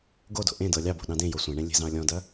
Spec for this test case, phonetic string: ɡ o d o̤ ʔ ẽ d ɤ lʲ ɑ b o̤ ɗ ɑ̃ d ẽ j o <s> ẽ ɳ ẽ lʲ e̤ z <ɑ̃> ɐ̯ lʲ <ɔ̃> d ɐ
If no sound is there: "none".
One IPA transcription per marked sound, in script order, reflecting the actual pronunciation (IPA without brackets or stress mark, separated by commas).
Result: sʷ, ɑ̃, ɔ̃